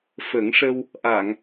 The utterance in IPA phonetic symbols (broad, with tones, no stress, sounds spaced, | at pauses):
f ə˨˩˦ ŋ ʂ ə˧ w | ʔ a˨˩˨ ŋ